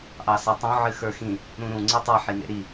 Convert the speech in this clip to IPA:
ʔɑsatˤõ ʕɨxə˞xĩ | ɾũɾũ ŋ͡ǀɨtˤa ħinḛɾi

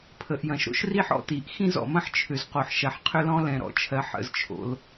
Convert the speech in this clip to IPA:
pʰə˩ʔjɐ̃˩ʃɾo̰˥ʃ ri˥ħ ɔ̰˥ti˩ʔ xĩ˥zɔ̰˩mɐ̃˥ħ t͡ʃʰʏ˩zqo˩ħ ʃɐ˩ħqʰʏ˥lɔ̃˥ lɛ̃˩ɾɔ̰˩t͡ʃʰɜ˩ħ ə̰˩zt͡ʃʰo̰˩l

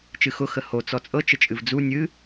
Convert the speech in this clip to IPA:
t͡ʃɨxʊ xəho t͡sɔt͡sʼɤ t͡ʃət͡ʃʼɨvd͡zu nʲɨ

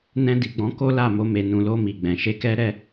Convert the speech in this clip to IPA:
nɛ̃˧di˨ɡ͡bɔ̃˨˦ ko˦la˦˨mo˧ me˨nũ˨lo˧ mi˨ ɡ͡bɛ̃˨ ʃe˧kɛ˦ɾɛ˦

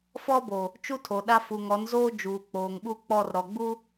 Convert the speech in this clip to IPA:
fɔ˦bo˨ | t͡ʃu˦tʰo˨ɗa˦ fu˨ŋɔ˨˦nzoː˦ d͡ʒuː˨k͡poː˨ŋɓu˦k͡pɔ˦˨r ɾɔ˨ɡ͡bu˦

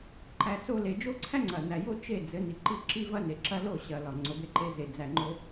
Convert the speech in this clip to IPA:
ǃæ˧ so˦le˧ d͡ʒo˦ǀʰæ˦ŋ͡ǀɐ˨næ˨ jo˦t͡ʃe˦˨ d͡zɘ˨˦ni˨ǃi˦˨ ǁi˦vɐ˦ne˨ǁɐ˦ lo˦˨ɕɐ˨ lɒ˨ŋ͡ǀo˨be˧ǃe˧ ze˨ d͡zæ˨ŋ͡ǃo˧

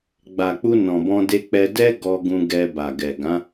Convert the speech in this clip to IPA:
ɡ͡ba˨k͡pu˧ nɔ̃˨bɔ̃˧de˧k͡pɛ˧ dɛ˦ ɡɔ˧ɡũ˧ ɡɛ˧ba˨ɡɛ˨ ɡã˨˦

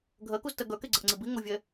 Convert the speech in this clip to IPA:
ɡʱɜkuztɜ ɡœkeɡ͡ǀəʔŋ͡ǀi biŋovʲɛ

